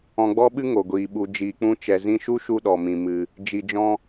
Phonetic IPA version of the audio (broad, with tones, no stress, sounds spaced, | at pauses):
ɔ̃˧ ɡ͡b ɔ˦ ɓ ɨ˦ ŋ o˨ ɡʷ iː˨ ɓ u˧ d͡ʒ iː˧ k͡p ũ˦ t͡ʃ ɛ˨ z ĩ˧ ʃ u˦ ʃ u˧ ɗ ɔ˨ m ĩ˨ m ɨ˨ | d͡ʒ i˧ d͡ʒ ɔ̃˦